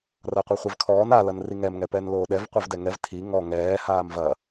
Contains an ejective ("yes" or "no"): no